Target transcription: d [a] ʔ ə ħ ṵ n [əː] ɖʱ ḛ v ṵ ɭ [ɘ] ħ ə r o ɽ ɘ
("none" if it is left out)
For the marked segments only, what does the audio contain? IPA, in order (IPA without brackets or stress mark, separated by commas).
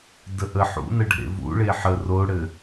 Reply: ə, ə, e